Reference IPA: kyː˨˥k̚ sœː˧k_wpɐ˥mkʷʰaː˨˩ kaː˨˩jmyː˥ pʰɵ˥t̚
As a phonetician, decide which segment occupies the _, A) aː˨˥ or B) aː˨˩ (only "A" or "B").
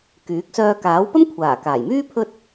A